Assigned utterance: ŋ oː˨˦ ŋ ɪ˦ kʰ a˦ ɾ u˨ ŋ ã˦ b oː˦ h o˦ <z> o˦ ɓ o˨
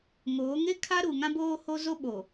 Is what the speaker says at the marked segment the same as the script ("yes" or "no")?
yes